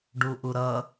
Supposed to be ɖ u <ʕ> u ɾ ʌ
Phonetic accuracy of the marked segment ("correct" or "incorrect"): incorrect